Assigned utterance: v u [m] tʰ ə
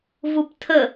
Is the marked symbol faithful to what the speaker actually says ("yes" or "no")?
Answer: no